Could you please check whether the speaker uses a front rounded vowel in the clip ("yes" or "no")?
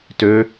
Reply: yes